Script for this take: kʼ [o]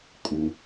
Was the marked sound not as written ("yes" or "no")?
yes